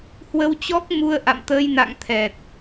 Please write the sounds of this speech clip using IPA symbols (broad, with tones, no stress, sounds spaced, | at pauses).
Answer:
h w ə˧ w t͡ɕ ɔ˦˥ k̚ m u˧ ə̯ ʔ a̰˧˨ m t̪ əː˧ j n a̰˧˨ ŋ t̪ʰ ɛ˨˩ t̚